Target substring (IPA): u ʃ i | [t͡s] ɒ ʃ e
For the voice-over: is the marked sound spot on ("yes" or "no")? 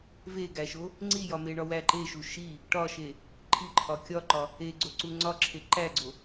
no